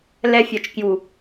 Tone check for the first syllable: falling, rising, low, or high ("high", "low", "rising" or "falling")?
high